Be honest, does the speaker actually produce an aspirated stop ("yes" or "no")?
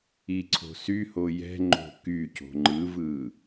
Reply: yes